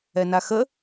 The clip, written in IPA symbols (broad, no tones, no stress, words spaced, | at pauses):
ɛnaxə